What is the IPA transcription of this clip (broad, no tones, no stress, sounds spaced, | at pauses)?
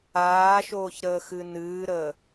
aː ʃ oː ç ɾ əː x ɨ n ɨː ɾ əː